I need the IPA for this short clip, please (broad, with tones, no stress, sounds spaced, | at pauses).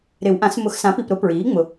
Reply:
ɾ ɪ˨˩˦ w ʔ ã˨˩˦ s m ʊ˨˩˦ x s ã˩˥ p i˨˩ p ɾ ʊ˨˩˦ p ɹ iː˩˥ ŋ͡m ʊ˨˩